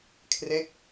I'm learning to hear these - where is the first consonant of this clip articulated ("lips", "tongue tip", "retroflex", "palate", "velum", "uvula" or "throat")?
velum